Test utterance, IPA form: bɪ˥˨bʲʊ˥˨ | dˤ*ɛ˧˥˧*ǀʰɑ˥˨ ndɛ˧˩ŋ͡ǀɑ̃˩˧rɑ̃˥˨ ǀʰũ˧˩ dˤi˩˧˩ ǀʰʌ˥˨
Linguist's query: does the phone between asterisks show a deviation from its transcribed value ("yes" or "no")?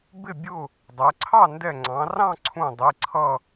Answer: yes